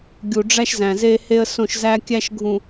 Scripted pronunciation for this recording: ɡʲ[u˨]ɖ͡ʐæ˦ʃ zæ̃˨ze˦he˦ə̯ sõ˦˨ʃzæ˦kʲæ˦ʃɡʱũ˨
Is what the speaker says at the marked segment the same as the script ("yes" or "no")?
yes